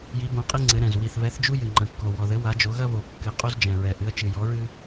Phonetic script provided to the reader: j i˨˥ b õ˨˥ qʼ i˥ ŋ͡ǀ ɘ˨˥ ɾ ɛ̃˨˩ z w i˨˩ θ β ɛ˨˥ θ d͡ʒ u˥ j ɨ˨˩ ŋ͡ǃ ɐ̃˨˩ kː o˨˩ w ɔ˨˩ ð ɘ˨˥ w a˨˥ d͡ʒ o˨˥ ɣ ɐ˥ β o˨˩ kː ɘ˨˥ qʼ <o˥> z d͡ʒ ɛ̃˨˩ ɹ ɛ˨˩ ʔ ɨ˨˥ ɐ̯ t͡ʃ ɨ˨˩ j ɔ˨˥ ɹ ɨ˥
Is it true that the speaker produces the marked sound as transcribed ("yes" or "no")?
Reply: yes